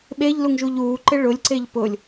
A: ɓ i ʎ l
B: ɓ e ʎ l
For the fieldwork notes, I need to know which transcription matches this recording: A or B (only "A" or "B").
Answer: B